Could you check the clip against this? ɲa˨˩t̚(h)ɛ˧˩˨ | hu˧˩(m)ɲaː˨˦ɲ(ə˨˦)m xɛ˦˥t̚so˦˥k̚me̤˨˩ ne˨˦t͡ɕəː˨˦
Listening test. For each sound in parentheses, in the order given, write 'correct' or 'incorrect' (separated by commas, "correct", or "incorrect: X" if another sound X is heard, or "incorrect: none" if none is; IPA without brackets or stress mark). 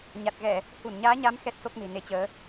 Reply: incorrect: ɣ, incorrect: n, incorrect: a˨˦